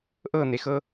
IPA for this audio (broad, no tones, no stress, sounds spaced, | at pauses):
ʔ ɤ n̪ e x ɤ